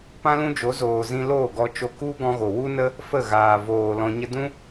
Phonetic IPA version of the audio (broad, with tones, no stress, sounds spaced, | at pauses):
p ã˦ l ũ˦ d͡ʒ o˨˦ z oː˨ z ĩ˧ l oː˦˨ ɡ ɔ˧ t͡ʃ o˧ k u˦ ɡ ɔ̃˦ ɣ o˨ w u˦ n ə˦ | f ə˦˨ ɣ aː˨ v oː˨ l ɔ̃˧ ɲ ə˦ d ũ˦